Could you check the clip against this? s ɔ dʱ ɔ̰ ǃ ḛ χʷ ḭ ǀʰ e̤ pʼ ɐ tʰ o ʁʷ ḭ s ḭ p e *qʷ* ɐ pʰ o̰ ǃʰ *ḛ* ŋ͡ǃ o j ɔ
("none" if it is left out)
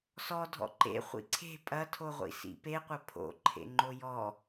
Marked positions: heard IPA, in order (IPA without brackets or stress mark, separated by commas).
qʷ, ḛ